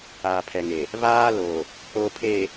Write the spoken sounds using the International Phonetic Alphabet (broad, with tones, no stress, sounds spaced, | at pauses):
aː˨ pʰ ɛ˨ ŋ e˨ | β aː˦ l o˨ | o˨ pʰ e˨